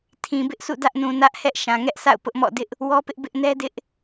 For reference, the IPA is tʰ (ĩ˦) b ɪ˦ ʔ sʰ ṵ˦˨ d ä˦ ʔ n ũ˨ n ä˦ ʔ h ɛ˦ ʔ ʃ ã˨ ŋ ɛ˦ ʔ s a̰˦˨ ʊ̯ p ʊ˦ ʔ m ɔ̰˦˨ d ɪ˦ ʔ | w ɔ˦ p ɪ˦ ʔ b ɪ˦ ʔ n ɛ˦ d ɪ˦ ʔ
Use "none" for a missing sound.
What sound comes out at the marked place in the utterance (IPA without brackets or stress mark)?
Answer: ĩ˨